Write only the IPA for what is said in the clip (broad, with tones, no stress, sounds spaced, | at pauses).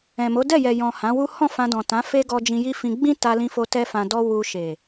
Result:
ɛ̃˨ m o˨˦ d ɛ˦˨ j ɛ˨ j ɔ̃˨ h ã˨˦ w u˦ h ɔ̃˦˨ f ã˧ d ɔ̃˨ t ã˨˦ f e˦ ɡ ɔ˧ d͡ʒ ĩ˧ j i˦ f ĩ˧ ɡ͡b ĩ˦ t a˧ l ĩ˧ f o˧ t ɛ˦ f ã˧ d ɔ˦ w u˧ ʃ e˨